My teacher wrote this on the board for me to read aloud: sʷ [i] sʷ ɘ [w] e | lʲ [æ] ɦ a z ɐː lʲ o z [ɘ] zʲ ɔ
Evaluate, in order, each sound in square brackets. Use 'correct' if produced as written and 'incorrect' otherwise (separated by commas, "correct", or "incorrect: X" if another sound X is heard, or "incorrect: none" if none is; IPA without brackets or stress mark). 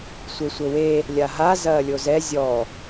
incorrect: e, correct, incorrect: a, incorrect: ɛ